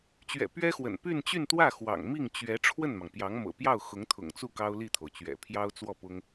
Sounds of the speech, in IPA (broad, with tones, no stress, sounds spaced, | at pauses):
t͡ɕ ɥ ɛ̰˨˩ p ɥ ɛ˥ x w ə̰˨˩ n p y˥˧ n t͡ɕ y˥˧ n t̪ w ä˥˩ x w ɑ̰˨˩ ŋ m i˥˩ ŋ t͡ɕ ɥ ɛ˧˥ ʈ͡ʂʰ w ə˥˩ n m ɑ˩ ŋ p j ɑ˧˥ ŋ m ɤ̰˨˩ p j ɑ˥˩ ʊ̯ x ʊ˧˥ ŋ t̪ʰ ʊ̰˨˩ ŋ t͡s u˥˩ k ɑ˥ ʊ̯ l i˥˩ t̪ʰ o˩ ʊ̯ t͡ɕ ɥ ɛ̰˨˩ pʰ j ɑ˥ ʊ̯ t͡s w ɔ˥˩ p ʊ˥ ŋ